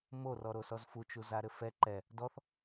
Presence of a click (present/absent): present